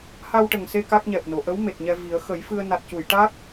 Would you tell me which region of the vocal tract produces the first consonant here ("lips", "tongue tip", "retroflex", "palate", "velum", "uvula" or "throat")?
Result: throat